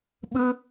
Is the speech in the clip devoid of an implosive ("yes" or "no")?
no